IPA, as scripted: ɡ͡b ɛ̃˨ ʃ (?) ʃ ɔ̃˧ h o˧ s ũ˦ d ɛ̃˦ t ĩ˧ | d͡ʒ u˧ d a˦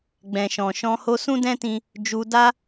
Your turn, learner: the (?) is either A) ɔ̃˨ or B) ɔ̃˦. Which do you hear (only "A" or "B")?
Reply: A